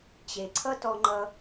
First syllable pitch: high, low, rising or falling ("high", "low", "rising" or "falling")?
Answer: low